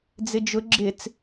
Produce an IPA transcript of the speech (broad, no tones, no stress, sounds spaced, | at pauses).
d͡z ɪ d͡ʒ ʊ ɡ͡ǁ ɪ t͡s